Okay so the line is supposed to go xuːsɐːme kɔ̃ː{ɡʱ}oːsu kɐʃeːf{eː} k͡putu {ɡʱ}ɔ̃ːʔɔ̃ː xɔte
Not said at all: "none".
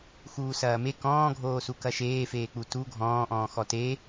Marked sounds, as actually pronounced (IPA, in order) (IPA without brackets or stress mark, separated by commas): ɡʱ, eː, ɡʱ